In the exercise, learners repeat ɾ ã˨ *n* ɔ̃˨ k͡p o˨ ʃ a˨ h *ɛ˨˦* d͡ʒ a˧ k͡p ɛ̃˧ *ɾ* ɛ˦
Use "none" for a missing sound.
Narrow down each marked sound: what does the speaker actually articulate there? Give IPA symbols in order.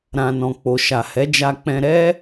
n, ɛ˨˦, ɾ

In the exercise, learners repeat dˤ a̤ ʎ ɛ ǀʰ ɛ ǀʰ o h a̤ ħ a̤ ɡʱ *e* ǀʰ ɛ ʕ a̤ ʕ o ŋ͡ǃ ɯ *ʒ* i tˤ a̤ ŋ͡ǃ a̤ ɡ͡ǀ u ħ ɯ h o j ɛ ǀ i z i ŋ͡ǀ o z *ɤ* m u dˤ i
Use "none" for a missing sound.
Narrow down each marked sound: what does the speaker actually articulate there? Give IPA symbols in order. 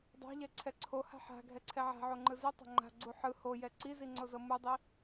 ɛ, z, ɤ

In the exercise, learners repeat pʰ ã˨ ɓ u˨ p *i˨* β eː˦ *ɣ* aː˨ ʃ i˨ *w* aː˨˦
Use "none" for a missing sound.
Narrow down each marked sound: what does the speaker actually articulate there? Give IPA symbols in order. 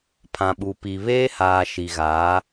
i˨, h, ɣ

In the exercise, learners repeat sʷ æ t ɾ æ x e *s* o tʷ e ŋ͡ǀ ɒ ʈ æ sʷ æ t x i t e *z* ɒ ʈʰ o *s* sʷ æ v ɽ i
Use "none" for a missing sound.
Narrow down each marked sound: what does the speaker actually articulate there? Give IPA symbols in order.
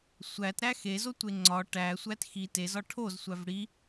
z, z, z

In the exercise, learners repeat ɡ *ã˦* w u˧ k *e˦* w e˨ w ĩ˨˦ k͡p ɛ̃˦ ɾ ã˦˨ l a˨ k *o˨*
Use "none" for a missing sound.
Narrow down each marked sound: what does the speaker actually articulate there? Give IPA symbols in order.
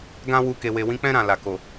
ã˦, e˨, o˨

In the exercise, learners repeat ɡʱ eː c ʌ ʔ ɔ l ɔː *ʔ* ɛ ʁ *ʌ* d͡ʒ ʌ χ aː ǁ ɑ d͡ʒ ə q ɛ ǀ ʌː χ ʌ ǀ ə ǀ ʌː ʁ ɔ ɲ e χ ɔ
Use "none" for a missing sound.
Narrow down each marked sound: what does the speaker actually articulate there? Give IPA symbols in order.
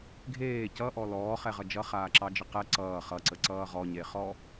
χ, ʌ

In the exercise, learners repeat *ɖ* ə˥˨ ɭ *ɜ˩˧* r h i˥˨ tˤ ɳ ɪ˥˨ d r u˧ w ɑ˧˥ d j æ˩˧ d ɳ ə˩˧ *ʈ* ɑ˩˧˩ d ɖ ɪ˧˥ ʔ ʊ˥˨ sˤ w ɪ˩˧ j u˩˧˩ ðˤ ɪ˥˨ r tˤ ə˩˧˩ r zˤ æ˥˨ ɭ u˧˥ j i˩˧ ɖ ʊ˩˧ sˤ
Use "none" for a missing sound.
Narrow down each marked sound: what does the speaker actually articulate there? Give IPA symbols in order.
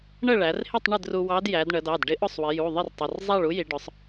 ɳ, æ˩˧, d

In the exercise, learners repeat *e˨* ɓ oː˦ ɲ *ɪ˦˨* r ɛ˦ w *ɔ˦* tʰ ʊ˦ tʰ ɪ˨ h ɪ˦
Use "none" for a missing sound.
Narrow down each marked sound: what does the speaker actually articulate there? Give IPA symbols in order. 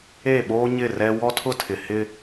e˦˨, ɪ˦˨, ɔ˦

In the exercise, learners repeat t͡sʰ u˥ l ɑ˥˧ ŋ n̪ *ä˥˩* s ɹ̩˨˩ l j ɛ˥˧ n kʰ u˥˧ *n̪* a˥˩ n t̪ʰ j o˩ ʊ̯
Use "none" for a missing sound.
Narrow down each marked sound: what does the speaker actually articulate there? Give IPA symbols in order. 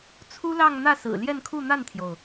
ä˥˩, n̪

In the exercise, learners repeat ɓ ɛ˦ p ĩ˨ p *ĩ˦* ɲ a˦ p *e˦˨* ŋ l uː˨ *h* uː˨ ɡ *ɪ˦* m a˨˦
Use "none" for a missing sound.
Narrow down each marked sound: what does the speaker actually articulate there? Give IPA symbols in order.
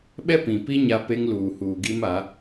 i˦, e˦, h, i˦

